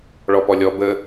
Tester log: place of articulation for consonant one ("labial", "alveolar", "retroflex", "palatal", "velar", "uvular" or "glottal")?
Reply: retroflex